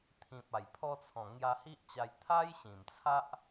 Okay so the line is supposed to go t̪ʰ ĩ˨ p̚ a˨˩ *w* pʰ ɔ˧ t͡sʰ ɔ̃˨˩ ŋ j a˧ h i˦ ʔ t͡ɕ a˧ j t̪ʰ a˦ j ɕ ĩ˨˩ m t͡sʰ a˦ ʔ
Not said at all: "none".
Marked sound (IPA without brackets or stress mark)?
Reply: j